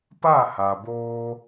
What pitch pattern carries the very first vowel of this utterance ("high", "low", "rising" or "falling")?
falling